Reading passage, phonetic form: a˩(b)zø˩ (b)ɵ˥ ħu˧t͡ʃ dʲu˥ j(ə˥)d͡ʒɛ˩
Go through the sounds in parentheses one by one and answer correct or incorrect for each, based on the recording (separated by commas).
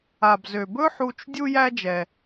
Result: correct, correct, incorrect